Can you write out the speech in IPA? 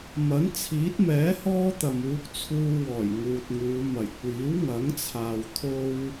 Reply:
m ɐ˨˥ n t͡sʰ iː˨˥ t̚ m ɛː˨˥ h ɔː˥ t̪ ɐ˨ m uː˧ k̚ t͡sʰ uː˧ w ɔː˨˩ j ŋ uː˨ t̚ ŋ uː˨˧ m ɐ˨˩ j kʷ iː˨˥ w ŋ ɐ˨˥ ŋ t͡sʰ aː˨ w t̪ʰ o˧ w

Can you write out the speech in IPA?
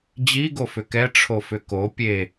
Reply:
d͡ʑ i ɡ o f ʏ k ɛ ʈ͡ʂʰ o f ʏ k o pʲ e

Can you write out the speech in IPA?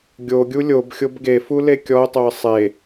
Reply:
ɡʲ o ɡʲ u lʲ o b xʲ o b ɡ e f u l e kʲ ɔ ʊ̯ tˤ o ə̯ sˤ e

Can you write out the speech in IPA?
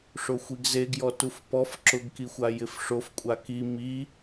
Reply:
ʂ o xʷ i ɡ z e ɡ j ɔ t u f p ɔ f ǁ ʊ ɡ k i xʷ a j ɪ f ʂ o f kʷʼ a k i m i

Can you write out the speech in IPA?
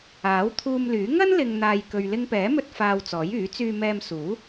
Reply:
aː˨˥ w t̪ʰ uː˧ m l yː˨˥ ŋ ɐ˥ n l ɪ˨ ŋ n̪ aː˨ j k ɵ˨ ɥ l ɪ˧ ŋ p ɛː˨˥ m ɵ˧ t̚ f aː˧ w t͡s ɔː˨˥ j yː˨˥ t͡s yː˧ m ɛː˧ m s uː˨˥

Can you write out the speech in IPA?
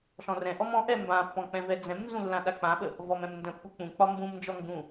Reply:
ɬ ɔ̃ r ɛ̃ ʔ ɔ m ɔ̃ ʔ ɛ m b ã pː ɔ̃ k͡p ɛ̃ v ɛ d͡z ɛ̃ m n z ũ lː ã ɗ a k͡p ã ɓ ə | v ɔ m ɛ̃ m n d ə̃ pː u k͡p ũ k͡p ɒ m b ũ m n d͡ʒ ɔ ŋ ɡ ũ

